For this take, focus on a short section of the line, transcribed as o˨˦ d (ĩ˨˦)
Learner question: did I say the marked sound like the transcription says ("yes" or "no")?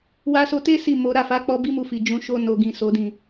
no